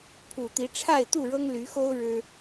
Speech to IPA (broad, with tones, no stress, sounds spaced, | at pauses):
pʰ u˨˩ t̪ i˨˦ ʈ͡ʂʰ a˥˨ ɪ̯ t̪ u˥˨ ɻ ɤ˦ ŋ l y˨˦ x o˦ ʊ̯ ɻ ɻ̩˦